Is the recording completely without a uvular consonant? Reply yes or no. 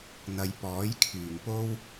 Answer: yes